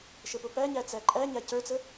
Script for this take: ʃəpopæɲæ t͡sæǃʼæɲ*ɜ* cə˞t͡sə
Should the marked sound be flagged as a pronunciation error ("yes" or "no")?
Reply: yes